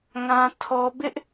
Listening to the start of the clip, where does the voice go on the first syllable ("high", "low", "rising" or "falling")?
high